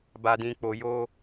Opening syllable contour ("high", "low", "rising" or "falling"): high